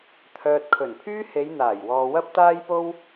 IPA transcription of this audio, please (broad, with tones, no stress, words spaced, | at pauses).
t̪ʰœː˨t̚kʰɵ˨˩npʰyː˥ he˨˧j n̪aː˨˩jwɔː˨ wɐ˥p̚t̪aː˥jpo˥w